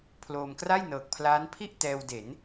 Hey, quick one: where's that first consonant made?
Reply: lips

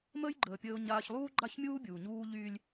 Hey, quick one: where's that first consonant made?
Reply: lips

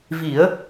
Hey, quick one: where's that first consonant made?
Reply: lips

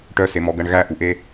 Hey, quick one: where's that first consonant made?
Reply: retroflex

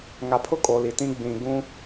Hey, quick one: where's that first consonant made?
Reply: velum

